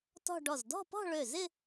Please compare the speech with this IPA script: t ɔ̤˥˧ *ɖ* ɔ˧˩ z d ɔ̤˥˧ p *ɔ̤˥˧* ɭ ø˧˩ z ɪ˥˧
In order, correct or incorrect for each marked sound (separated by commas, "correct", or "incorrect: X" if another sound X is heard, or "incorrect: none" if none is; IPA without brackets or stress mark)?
correct, correct